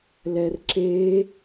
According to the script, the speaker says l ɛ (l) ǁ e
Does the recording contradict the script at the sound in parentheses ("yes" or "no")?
yes